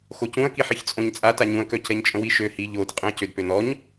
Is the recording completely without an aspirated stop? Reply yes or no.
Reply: yes